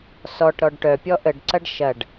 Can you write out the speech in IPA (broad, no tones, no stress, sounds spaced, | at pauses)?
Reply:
s ɔ ʈ ɾ ɔ ɖ ʈ œ pʲ ɔ ʔ ə ɖ ǀ ɐ ɖ ʃ ɐ ɖ